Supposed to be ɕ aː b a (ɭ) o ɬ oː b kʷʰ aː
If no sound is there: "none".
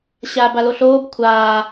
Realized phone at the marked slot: l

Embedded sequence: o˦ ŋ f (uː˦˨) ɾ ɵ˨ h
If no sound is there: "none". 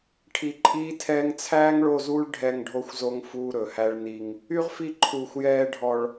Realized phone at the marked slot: uː˦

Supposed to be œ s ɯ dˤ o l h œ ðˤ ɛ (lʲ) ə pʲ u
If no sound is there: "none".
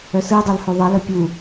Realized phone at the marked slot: l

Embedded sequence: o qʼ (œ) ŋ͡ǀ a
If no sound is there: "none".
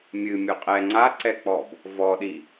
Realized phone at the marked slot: ɛ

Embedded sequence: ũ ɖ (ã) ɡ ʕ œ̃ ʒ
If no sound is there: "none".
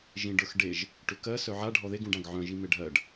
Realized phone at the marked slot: ã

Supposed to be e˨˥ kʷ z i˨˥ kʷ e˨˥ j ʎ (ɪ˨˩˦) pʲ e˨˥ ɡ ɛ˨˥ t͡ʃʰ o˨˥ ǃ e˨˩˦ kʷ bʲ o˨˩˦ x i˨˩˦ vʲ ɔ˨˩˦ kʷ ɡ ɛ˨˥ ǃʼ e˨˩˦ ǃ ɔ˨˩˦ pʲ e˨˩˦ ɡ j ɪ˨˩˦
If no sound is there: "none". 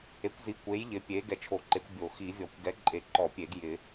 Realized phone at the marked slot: ɪ˨˥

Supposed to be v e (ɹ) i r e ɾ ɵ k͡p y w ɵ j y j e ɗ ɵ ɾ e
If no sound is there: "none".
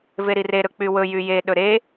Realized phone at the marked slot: ɾ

